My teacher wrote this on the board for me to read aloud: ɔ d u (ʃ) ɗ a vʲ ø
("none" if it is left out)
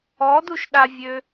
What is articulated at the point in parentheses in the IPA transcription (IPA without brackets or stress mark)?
ʃ